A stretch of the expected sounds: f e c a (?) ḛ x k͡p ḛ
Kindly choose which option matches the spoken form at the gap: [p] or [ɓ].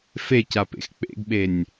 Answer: p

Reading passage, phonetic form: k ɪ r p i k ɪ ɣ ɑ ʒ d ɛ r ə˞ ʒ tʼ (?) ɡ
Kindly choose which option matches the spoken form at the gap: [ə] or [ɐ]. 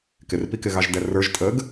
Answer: ə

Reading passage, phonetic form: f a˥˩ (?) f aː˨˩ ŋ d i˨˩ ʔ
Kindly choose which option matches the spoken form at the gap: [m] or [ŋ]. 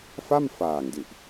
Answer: m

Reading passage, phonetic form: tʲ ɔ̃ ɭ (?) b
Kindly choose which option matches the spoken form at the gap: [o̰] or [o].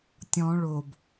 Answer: o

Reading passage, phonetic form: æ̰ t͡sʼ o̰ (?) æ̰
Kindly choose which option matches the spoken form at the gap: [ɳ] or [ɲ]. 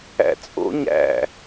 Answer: ɲ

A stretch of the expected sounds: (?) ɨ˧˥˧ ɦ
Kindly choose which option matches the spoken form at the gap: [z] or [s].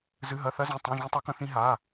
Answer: z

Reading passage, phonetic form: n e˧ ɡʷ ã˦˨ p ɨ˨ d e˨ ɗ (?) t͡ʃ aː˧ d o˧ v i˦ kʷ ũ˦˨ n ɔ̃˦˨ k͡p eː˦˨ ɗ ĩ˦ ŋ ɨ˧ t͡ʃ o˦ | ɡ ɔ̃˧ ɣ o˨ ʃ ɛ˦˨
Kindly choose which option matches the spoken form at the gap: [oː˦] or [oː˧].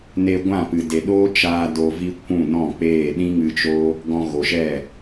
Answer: oː˦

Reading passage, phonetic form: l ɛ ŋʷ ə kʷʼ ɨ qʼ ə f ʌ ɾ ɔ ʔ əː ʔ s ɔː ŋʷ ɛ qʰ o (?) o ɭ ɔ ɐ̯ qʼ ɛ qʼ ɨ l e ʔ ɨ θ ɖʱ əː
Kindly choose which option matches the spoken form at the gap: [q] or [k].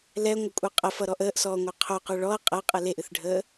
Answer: q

